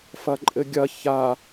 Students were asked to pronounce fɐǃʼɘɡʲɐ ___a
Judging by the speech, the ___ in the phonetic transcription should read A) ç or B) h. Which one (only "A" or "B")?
A